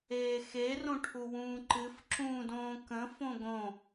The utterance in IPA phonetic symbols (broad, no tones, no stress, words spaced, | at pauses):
eːxe rõʈʰuwũːǃɨf ǁũːdõːkə̃ fõɡõ